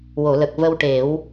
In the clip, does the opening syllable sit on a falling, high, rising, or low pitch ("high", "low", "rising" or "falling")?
low